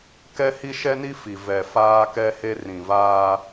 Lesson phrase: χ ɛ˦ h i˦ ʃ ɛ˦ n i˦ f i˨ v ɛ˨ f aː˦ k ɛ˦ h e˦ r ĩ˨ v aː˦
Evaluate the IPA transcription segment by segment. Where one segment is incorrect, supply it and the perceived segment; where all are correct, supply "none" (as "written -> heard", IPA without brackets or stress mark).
χ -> k